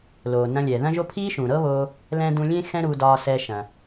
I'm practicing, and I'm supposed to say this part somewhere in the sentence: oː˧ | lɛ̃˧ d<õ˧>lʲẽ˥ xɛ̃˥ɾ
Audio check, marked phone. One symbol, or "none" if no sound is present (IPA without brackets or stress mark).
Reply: ũ˧